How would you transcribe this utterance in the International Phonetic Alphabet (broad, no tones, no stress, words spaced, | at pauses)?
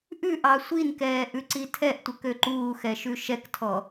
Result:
ʔʉ ʔɑsʷinkɛː ʔʉǀitʰɛʔtʷə køǃuːxɛ ʃʉʃɛktʰɔ